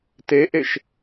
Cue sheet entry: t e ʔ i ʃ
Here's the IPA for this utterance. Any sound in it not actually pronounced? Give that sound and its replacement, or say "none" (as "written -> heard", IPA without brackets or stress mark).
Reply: i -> e